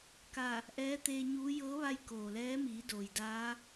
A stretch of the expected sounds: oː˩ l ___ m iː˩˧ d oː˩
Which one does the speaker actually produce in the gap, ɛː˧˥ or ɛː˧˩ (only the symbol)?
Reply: ɛː˧˥